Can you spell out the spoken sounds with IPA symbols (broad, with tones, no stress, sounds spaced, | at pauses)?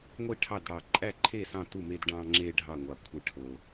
ŋʷ i˥˨ ʈʰ ɑ˥˨ d ɽ ɑ˧ ǃʼ æ˥˨ ǃʰ e˥˨ s ɑ̃˥˨ t u˥˨ m e˧ d ɖ ɑ̃˧ ŋ͡ǁ e˧ ɖʱ ɑ˥˨ ŋʷ ɑ˧ kʷʰ e˥˨ ʈʰ o˧